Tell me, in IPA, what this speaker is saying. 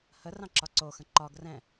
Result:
h ə r ɑ̃ ǁ ɒ ǀ o x ə̃ ǃ ɒ ɡ r ɛ̃

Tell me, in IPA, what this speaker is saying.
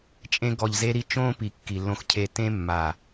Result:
t͡ʃʼ ẽ˧ ɡ ɔ˨ ʎ z e˧ ɾ i˧ t͡ʃ õː˦ p i˨ kː i˨ lː õ˧ x cʰ e˧ t ẽ˧ mː a˨

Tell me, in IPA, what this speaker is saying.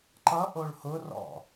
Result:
ǃ ʌ ʔ o ɭ h ʊ r ɔ̰

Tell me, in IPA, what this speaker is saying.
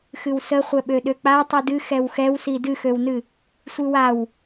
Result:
x ɨ w s ə χʷ ɛ ɓ ø ɗ ø k͡p a tˤ i d ɨ x ɛ w x ɛ w s i d ɨ x ø w n ɨ | sʷ ɨ w a w

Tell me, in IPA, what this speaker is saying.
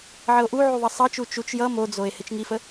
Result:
ʕ ə o̯ ʔ u ʕ u ðˤ ʌ sˤ ʌ t͡ʃ u t͡ʃ u t͡ʃ j ʌ m o d͡z o e̯ h ɪ t͡ʃ ŋ i f ə

